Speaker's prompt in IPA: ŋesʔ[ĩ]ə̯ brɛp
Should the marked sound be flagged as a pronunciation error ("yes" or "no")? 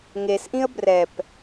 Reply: no